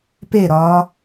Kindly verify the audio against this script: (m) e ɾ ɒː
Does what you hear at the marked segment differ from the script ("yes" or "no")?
yes